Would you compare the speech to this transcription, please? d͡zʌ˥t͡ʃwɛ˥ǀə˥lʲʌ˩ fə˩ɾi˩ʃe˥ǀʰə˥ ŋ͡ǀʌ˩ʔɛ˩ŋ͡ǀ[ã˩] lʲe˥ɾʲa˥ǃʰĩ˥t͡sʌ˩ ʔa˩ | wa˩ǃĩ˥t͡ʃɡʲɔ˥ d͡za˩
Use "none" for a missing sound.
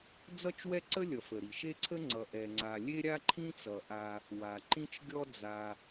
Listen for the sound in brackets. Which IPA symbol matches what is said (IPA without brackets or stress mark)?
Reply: a˩